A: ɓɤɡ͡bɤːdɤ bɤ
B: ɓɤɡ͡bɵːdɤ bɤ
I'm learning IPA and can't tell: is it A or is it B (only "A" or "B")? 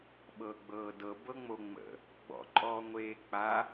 A